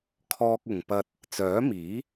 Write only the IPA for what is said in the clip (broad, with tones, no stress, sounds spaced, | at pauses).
kʰ ɔː˧ k̚ ʊ˨ ŋ p ɐ˧ t̚ | t͡s œː˨˥ m iː˨˥